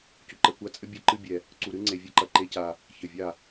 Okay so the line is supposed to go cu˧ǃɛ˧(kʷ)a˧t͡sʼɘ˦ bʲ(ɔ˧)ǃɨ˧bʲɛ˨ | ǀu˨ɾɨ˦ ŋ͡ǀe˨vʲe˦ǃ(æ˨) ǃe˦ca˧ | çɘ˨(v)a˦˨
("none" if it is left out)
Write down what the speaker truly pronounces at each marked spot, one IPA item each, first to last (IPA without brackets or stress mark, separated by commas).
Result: kʷ, ɔ˧, ɐ˨, vʲ